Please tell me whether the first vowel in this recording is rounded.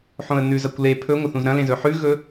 yes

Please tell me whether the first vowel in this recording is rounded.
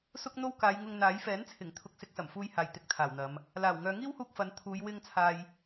yes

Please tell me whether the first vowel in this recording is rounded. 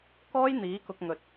yes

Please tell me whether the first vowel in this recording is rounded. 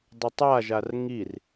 yes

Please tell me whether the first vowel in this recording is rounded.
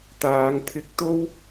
no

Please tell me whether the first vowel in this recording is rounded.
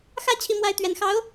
no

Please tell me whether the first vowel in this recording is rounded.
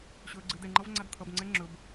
yes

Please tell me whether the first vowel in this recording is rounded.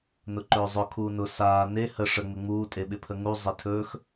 yes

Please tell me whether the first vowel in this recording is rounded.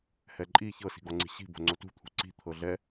no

